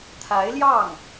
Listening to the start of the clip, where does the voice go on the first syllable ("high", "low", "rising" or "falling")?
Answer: rising